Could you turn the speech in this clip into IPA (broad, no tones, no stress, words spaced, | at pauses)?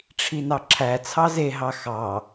ʈ͡ʂʰinɑǁʰæ t͡sʰɑze ɦɑxɑ